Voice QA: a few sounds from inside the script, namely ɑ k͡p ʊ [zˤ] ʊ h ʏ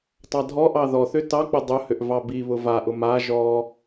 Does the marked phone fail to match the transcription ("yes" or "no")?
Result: yes